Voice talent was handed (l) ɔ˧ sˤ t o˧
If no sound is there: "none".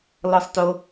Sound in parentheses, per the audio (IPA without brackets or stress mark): l